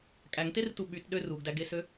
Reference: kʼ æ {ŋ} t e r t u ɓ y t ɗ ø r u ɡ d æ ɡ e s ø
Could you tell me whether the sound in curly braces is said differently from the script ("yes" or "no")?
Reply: no